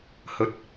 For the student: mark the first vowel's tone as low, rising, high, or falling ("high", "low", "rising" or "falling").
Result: low